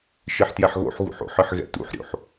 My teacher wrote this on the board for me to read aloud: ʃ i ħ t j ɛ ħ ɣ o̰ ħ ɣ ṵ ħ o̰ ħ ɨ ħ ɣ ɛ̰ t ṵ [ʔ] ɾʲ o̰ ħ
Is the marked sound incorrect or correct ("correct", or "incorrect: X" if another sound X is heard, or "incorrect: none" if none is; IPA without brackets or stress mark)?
incorrect: ħ